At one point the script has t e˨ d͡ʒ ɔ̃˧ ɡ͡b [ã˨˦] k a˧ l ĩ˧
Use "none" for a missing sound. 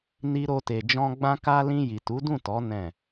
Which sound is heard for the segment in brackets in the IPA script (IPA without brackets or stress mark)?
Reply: ã˧